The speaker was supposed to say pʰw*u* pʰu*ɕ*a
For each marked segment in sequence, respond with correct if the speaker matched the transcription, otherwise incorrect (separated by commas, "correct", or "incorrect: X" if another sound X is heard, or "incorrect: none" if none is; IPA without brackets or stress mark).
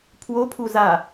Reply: incorrect: o, incorrect: z